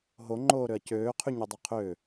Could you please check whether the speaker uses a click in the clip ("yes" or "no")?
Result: yes